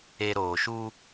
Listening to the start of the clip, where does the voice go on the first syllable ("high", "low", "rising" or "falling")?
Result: low